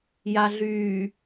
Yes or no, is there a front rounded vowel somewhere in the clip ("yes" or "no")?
yes